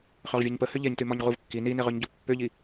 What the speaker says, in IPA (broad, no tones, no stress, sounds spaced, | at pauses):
χ ʏ ʁ vʲ ɔ ɲ p ə h ʏ ʎ e ɲ t y m ɔ ɲ ʁ u v kː i n i n i ʁ y ɲ ɟ u pː ʏ ʎ i